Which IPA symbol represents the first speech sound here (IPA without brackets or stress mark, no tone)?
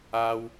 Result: a